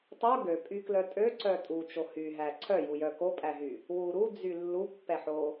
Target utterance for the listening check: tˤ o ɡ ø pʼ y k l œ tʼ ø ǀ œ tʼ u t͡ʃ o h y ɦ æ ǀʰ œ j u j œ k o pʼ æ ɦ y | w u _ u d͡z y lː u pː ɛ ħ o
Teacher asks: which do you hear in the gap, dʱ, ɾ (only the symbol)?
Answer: ɾ